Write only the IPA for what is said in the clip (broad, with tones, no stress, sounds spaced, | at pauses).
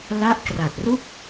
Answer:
l a˦˥ ʔ k r a˨˩ t̚ r u˥˩ k̚